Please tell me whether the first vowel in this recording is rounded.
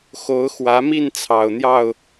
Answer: yes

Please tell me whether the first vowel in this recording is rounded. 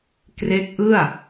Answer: no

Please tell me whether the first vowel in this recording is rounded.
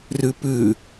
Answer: yes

